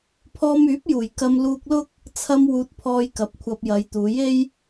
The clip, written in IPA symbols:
pʰ ɔː˧ m yː˨˥ p̚ j uː˨˩ j k ɐ˧ m l uː˧ k̚ l ʊ˥ k̚ | t͡sʰ ɐ˧ m w uː˧ t̚ pʰ ɔː˧ j k ɐ˨˥ p̚ kʷʰ ɐ˧ p̚ j ɐ˨˧ j t̪ uː˨˧ j e˥ j

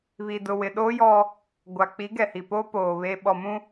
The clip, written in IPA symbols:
β i˨ d ʊ˨ w ɪ˨ ɗ oː˦ j ɔ˦ | ɡʷ a˨ k͡p i˨˦ ɡ ɛ˨ h i˨ p oː˦ p oː˨ β e˨ ɓ ɔ˨ m ũ˦

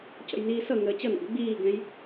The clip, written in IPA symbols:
c ə̰ j n iː s ʌ ŋ əː t͡ɕ ʌ n ɔ̰ ɡ ɡ͡b iː ɡ ɛ̃ j

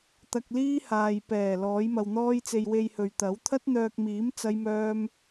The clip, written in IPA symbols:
t̪ ɐ˧ k̚ l iː˥ h aː˨ j p ɛː˨˩ l ɔː˨˥ j m ɐ˧ w n̪ ɔː˥ j t͡s e˧ j w e˧ j h ɵ˨ ɥ t̪ ɐ˨˥ w t̪ʰ ɐ˥ t̚ n̪ œː˧ k̚ m iː˨˥ m t͡s ɐ˥ j m œː˥ m

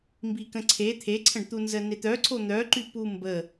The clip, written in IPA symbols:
m b i k ə̃ ǀʰ e t̪ʰ e ǀʰ ə̃ ɖ t̪ u n z ə n e t̪ œ ǀʰ o n̪ œ ǃ y p u m b ə

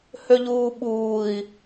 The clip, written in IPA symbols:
h ø ʎ uː ɓ uː i̯

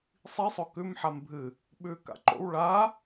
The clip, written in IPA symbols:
sˤ i sˤ o k ʉ m ħ a m bʱ ɨ | ɓ ʉ k a̰ ǃ o̰ w ɭ a

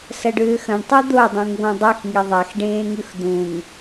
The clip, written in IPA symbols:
s ɐ ɖ ʏː x ɐ̃ ɳ tˤ u d̪ o dˤ ũ ŋ β õ dˤ i x ŋ i ðˤ a x ɖ ẽː ŋ ʉ x d̪ ũ ŋ

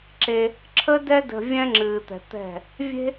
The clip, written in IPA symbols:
ǁ e˧ | ǁʰ ə˦ d ɛ˦ d ə̤˧ vʲ ɛ̃˦ ŋ͡ǁ ɨː˨ t̪ ɛ̤˨ t̪ ɛ̤˦˨ | vʲ e̤˦

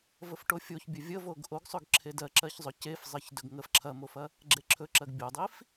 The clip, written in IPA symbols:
v ə f ʈ o fʲ o ç bʲ ɵ vʲ ə v o ɡ ʔ o ɡ sˤ ɵ ɡ ǁʰ e d ɜ ǁ ɜ ç zˤ ɵ c e f zˤ ɜ ç d ɵ ɡ ŋ ə f ǁʰ ɐ m o f ɐ | ɡ͡ǁ e ǁʰ ɵ ǁ ɜ ɡ bʲ o dˤ i f

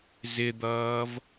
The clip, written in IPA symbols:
z ɪ d̪ ʌː v

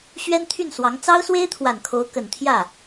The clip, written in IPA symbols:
ɕ ɥ ɛ˥ n t̪ʰ y˥˩ n s w ɑ˧˥ ŋ t͡s ɑ˥ ʊ̯ s w e˥ ɪ̯ t̪ʰ w a˨˩ n kʰ o˧˥ ʊ̯ k ə˨˩ n t̪ʰ j ä˥˩

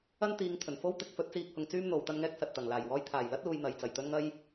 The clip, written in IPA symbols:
ɐ˥ n t̪ iː˨˧ ŋ t̪ʰ ɵ˨˩ n f o˥ w t̪ ɪ˨˥ k̚ f ɵ˨˥ t̚ t͡s iː˧ k̚ h ʊ˨ ŋ t͡s yː˥ m n̪ o˨˧ w t̪ ɐ˥ n ŋ ɛː˥ k̚ s ɐ˨ t̚ t̪ ɐ˨˩ ŋ l aː˨˩ j w ɔː˧ j t̪ʰ aː˨˩ j l ɐ˥ t̚ l uː˨ j n̪ ɐ˨˧ j t͡s ɐ˨˩ j t̪ ɵ˥ n ŋ ɐ˥ j

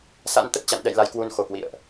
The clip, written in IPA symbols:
s a̰˧˥ n t̪ ə˨˩ t̚ t͡ɕ a̰˧˨ n ɗ ɛ̰˧˨ j l a˨˦ j k w u˧ n x o˨˩ k w ḭ˧˨ ə̯ ʔ

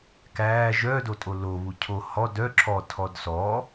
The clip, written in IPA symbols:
k æː ʒ œ d o tʼ o l o β u cʰ o h ɔ d œ ǁʰ ɔ tʰ ɔ d s ɔ

